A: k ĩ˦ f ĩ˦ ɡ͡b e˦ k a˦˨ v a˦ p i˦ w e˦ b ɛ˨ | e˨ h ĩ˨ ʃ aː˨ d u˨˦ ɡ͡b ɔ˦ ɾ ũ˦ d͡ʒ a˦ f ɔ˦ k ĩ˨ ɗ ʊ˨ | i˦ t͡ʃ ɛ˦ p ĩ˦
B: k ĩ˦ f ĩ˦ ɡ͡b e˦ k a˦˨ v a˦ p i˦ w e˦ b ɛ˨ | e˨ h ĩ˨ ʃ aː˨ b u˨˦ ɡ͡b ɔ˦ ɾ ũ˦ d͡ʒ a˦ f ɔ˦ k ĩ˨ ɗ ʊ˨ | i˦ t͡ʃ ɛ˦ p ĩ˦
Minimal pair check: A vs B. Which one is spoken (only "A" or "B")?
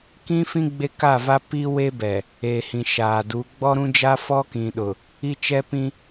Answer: A